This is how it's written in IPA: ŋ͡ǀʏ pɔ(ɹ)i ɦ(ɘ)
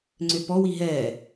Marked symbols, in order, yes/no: no, no

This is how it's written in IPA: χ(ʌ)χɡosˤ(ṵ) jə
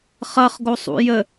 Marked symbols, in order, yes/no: yes, yes

